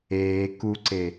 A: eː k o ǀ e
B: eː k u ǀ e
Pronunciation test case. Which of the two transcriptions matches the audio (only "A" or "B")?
B